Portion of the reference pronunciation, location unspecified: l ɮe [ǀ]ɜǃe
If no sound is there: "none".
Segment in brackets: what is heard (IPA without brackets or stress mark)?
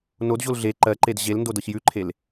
ǃ